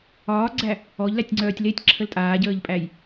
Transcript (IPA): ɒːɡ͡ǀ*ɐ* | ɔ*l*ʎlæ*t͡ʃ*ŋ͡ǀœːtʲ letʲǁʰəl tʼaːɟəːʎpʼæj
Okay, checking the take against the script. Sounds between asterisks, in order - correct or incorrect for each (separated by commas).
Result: incorrect, incorrect, incorrect